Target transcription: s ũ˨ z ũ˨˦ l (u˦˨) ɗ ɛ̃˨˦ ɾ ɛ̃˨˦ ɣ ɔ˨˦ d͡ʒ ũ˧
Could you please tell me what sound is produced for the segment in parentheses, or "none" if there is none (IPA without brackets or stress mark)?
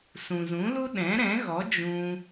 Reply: u˦